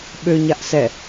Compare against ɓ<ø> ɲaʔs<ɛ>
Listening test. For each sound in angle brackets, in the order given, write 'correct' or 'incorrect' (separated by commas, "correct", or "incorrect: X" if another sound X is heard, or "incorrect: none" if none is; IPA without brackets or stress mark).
correct, correct